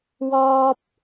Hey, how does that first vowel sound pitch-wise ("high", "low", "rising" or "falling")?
high